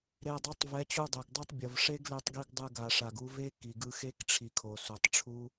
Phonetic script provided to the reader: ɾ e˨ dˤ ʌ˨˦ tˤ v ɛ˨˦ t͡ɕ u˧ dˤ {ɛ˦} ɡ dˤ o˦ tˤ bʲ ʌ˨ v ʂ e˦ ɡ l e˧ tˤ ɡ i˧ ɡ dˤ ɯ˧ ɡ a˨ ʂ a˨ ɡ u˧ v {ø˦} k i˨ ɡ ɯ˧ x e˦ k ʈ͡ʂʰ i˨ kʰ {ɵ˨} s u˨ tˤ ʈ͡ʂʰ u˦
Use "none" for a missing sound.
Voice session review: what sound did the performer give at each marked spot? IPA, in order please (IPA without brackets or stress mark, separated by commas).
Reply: ɛ˨, e˦, o˨